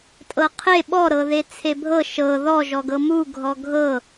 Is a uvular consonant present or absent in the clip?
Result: present